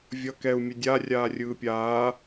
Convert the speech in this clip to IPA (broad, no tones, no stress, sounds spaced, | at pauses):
vʲ ʌ k ɛ u̯ mʲ ɛ dʲ a rʲ aː rʲ ɯː pʲ aː